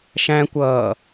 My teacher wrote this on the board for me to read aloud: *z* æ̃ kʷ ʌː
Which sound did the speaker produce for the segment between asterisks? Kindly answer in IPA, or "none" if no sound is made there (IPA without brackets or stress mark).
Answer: ʃ